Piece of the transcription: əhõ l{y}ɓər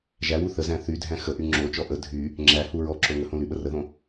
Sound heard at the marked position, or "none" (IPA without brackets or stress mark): y